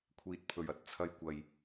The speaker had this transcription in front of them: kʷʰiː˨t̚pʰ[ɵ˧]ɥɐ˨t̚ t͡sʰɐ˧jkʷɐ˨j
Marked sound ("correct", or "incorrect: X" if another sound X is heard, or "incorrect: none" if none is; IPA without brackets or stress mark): incorrect: ɵ˨˩